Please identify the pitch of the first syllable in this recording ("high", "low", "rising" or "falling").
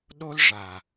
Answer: high